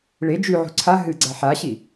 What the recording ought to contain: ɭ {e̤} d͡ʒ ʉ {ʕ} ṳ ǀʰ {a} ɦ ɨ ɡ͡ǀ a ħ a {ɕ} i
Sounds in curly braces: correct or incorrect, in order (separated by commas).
incorrect, correct, correct, correct